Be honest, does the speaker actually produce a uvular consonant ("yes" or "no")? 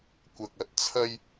no